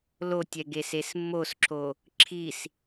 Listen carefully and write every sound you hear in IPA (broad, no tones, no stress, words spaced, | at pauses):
lotʲɛ ɡesesmːosǁʰo | ǁʰis